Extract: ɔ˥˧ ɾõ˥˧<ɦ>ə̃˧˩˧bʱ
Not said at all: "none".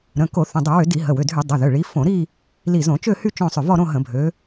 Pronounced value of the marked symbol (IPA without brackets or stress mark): ɦ